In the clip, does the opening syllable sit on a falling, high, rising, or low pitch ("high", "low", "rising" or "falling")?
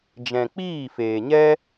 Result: low